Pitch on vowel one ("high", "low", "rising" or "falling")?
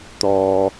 low